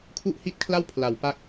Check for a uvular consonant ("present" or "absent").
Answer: absent